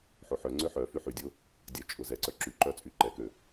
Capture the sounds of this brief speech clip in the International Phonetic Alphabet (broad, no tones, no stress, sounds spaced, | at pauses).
ħ o ħ œ ŋ͡ǀ ø ħ œ f y ħ y dʲ o | dʲ œ t͡ʃʼ ʊ z ɛ ǀ œ ǁ y ǃ œ t͡sʼ y ǃ ɛ k ø